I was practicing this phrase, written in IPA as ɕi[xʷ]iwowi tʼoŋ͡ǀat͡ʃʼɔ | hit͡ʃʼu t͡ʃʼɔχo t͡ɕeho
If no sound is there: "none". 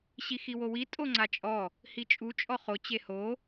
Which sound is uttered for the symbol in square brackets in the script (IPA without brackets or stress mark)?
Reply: x